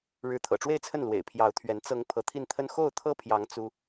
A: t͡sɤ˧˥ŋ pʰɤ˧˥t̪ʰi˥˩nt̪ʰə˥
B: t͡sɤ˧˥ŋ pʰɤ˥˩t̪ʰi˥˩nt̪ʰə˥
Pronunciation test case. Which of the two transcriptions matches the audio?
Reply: A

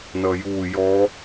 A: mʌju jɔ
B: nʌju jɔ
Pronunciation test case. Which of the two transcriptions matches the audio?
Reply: B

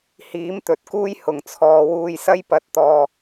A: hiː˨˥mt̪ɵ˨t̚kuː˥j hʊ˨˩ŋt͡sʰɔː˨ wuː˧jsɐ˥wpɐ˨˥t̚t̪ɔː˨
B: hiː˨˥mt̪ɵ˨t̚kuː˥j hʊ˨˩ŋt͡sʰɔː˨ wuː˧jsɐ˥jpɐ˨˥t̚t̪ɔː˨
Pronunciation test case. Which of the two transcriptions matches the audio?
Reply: B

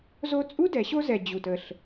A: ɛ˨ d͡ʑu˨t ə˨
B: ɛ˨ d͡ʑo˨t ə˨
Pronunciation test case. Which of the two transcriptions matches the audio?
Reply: A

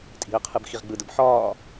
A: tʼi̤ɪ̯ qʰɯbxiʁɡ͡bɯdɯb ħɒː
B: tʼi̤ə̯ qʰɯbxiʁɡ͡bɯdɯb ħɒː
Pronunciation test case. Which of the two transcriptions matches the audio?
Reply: B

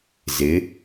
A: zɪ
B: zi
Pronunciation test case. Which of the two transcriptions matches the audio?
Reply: A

